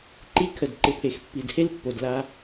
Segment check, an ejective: absent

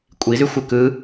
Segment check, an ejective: present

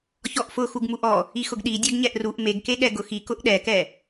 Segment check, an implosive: present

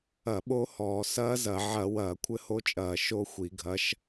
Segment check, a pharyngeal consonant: present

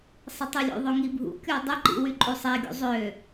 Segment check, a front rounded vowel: present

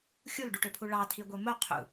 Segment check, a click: absent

